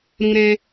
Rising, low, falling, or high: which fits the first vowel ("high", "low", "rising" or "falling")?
high